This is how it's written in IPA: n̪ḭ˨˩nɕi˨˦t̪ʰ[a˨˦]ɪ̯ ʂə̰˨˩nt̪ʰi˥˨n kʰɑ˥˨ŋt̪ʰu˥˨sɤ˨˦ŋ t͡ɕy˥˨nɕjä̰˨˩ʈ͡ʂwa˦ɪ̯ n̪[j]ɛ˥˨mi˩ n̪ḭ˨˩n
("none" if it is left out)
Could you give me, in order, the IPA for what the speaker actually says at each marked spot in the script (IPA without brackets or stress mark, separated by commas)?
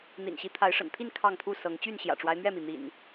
a˨˦, ɥ